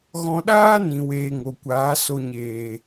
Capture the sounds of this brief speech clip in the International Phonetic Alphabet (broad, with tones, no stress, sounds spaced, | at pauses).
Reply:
ɣ ɔ̃˧ ɗ aː˦ n ĩ˨ w eː˧ ŋ o˨ kʷ aː˨˦ s o˨ ɲ eː˨